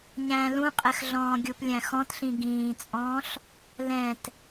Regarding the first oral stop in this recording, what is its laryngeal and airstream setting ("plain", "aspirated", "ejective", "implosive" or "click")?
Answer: ejective